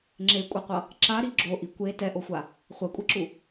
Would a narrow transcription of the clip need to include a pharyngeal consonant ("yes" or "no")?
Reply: no